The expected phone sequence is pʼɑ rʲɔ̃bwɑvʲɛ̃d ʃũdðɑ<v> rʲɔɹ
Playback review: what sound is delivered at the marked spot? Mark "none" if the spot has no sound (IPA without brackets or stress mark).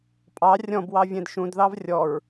v